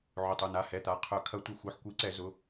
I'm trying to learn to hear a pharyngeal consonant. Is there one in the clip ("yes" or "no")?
yes